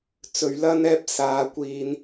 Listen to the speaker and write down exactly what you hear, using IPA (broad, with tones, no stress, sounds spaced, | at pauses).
t͡s ɵ˨˩ ɥ l ɐ˧ n ɛː˧ p̚ s aː˨ kʷ iː˧ n